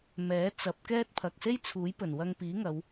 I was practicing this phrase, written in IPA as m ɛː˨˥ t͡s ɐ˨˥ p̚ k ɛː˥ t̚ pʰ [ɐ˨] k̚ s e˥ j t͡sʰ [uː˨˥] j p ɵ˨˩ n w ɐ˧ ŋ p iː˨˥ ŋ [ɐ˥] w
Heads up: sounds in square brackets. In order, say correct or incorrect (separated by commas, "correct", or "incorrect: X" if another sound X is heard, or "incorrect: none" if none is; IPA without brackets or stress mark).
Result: correct, correct, incorrect: ɐ˨˧